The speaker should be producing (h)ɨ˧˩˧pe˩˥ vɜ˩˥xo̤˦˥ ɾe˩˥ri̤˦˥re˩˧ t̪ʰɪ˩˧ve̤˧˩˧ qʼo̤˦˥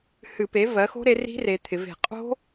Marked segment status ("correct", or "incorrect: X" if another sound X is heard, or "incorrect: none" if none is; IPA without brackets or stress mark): correct